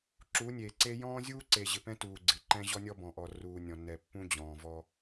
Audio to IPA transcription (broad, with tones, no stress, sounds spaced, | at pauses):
ǁ uː˨˦ nʲ eː˨ ǀ eː˦ j ɔ̃ː˦ zʲ uː˦ ǀ eː˨ ʑ ɪ˨ p ɛ̃˦ t uː˨ ɡ͡ǀ ɪ˨ ǃ ɛ̃˦ ʑ ɔ˦ nʲ ɔ˦ b ɔ̃˨ ʔ ɔ˨ r uː˨ nʲ ɔ̃˨ nː ɛ˨ pː ũ˦ d͡ʑ ɔ̃ː˨ v ɔ˦